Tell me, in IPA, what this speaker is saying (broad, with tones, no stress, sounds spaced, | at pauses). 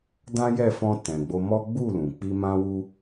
d ã˦ j ɛ˦˨ f ɔ̃˧ t ɛ̃˨ ɡ͡b o˧ m ɔ˦ ɡ͡b u˦˨ l ũ˨ k͡p i˧ m ã˦ w u˦